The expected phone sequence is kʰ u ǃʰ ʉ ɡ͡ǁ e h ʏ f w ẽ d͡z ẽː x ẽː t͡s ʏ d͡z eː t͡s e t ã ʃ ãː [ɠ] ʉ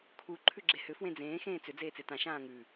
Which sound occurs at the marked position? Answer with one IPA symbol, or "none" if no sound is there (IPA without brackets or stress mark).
ŋ